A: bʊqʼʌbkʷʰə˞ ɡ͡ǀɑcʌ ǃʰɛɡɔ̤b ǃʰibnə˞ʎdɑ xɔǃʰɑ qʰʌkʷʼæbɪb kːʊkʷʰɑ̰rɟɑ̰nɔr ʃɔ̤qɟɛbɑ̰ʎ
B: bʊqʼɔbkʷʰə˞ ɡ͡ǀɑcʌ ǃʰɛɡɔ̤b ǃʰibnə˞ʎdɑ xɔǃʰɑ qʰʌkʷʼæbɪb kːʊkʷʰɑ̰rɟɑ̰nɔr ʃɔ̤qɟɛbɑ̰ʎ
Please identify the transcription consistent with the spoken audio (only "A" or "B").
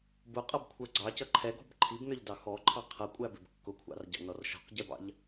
A